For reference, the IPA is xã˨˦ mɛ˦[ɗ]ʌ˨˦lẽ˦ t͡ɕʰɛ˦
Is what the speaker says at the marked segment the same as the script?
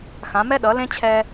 yes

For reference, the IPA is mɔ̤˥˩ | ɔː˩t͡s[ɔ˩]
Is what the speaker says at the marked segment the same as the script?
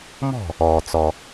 yes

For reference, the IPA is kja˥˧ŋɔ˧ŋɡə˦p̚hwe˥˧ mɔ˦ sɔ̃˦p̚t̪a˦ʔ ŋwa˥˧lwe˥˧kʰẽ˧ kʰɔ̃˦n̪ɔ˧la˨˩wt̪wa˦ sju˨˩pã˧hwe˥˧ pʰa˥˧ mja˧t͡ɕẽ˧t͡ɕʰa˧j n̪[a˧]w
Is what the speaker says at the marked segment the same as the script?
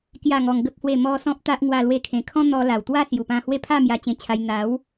no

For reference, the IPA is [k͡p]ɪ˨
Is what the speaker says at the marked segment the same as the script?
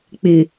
yes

